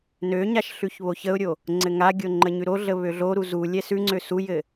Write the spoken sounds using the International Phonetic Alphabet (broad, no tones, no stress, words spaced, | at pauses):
nøɲaʃ ɬʉçβoçəʊ̯ɾʲo | ŋ͡ǀɘŋaɡʲo ŋ͡ǃəɲʉɾoɮə βøɮoɾu zu lʲɛsʉŋ͡ǀø sujɘ